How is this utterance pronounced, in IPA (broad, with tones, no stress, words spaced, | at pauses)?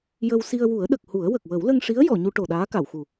jə˧w si˧ə̯wu˨˩˦ə̯ɗə˨˩k̚hu˨˩˦ə̯ wə˨˩k̚wə˨˩˦wlə˧ŋʂi˧˥ə̯ jɔ˨˩˨ɲu˧ ʈo˨˩ɗaː˧˥ka˨˩˨wxu˨˩